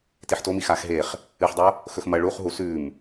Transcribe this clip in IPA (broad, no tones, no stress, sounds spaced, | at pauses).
t i ħ t o m i x a x ɦ e χ | ɨ ħ dˤ o | x ɵ x m ɐ ɭ u χ ɦ u s ʉ m